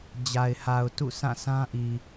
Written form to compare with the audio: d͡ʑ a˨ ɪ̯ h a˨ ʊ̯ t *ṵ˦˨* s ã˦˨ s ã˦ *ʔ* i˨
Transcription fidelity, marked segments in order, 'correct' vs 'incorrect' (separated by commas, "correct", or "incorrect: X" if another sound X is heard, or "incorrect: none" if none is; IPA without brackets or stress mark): correct, correct